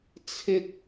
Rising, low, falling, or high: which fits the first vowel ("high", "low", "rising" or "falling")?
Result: high